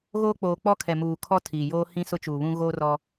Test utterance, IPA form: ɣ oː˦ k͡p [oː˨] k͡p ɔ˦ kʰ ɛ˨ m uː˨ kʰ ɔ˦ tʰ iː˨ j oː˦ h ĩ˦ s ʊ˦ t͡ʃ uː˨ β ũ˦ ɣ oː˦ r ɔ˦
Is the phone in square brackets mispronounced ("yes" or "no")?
no